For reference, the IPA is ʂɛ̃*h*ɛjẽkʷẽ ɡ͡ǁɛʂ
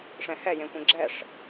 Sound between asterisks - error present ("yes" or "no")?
no